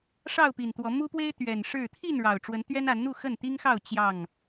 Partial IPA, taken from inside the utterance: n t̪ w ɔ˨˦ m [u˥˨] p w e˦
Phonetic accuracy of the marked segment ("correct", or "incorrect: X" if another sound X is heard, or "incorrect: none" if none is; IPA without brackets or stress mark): incorrect: u˦